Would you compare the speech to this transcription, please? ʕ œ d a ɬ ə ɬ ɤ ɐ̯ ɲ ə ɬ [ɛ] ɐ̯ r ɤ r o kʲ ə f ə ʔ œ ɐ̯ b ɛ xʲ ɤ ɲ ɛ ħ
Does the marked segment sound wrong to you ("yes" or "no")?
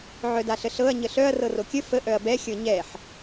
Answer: yes